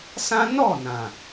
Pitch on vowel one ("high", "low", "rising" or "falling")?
high